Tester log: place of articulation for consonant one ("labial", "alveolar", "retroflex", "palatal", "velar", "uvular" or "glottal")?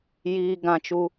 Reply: palatal